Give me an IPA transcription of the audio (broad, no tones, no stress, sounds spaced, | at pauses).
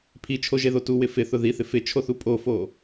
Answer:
pʰ i t͡ʃʰ o ʒ e ð o t u w ɪ f ɪ θ ʊ ð i θ ɪ f ɪ t͡ʃʰ o θ u pʼ o f o